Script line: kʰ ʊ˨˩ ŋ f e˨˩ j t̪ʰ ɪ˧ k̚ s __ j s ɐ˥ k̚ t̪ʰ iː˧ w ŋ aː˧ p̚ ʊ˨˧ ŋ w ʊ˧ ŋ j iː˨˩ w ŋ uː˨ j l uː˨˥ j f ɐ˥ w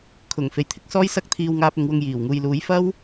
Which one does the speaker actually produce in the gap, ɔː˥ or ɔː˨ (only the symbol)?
ɔː˥